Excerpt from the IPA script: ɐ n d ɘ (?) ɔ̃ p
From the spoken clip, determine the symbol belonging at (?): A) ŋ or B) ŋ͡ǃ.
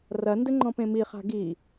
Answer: B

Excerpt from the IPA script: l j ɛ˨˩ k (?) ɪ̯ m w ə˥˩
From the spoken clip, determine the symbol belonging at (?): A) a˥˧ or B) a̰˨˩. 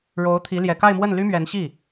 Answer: A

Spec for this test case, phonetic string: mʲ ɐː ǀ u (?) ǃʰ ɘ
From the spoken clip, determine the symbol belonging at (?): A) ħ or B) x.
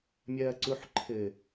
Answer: A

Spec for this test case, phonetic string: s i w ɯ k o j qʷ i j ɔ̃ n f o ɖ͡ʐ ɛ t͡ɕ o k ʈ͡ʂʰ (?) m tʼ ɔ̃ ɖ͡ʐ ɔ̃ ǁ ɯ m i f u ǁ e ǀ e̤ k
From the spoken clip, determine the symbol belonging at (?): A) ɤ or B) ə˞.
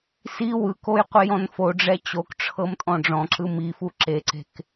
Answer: A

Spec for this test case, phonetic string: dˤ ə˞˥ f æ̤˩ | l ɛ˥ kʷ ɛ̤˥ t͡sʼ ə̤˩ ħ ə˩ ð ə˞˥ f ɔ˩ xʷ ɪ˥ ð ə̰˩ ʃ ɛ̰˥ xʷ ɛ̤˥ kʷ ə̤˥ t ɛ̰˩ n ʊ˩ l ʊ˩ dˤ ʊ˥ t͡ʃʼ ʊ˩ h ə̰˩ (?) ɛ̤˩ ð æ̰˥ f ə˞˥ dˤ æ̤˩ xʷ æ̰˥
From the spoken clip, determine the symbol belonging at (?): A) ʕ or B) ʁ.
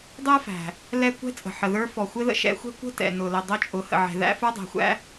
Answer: A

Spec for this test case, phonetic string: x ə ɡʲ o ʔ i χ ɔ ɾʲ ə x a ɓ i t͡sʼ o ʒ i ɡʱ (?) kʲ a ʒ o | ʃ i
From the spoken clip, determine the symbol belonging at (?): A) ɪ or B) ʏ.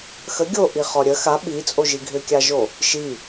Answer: B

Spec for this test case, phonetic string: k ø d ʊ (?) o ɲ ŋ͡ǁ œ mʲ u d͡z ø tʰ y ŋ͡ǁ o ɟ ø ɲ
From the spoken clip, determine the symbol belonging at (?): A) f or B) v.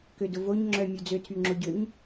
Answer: B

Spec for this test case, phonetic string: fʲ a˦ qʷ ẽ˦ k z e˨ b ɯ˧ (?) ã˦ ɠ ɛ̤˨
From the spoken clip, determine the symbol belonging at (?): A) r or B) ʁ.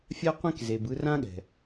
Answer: A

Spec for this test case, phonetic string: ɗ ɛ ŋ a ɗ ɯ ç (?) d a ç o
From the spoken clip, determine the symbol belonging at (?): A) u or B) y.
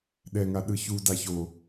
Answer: A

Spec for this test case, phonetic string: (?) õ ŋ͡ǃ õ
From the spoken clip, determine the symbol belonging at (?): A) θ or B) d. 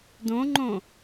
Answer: B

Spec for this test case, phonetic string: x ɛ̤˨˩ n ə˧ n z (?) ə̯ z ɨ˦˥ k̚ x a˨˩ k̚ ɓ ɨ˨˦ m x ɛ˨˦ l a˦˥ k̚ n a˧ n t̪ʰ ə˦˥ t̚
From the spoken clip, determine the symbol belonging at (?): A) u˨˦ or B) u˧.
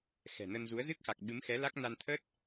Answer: A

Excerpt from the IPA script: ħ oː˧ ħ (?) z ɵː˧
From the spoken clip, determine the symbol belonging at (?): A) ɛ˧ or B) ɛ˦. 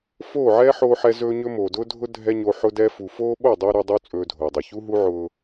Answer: A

